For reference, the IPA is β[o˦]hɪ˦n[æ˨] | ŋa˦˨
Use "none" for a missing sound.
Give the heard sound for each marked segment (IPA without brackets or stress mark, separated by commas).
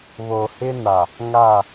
o˨, a˨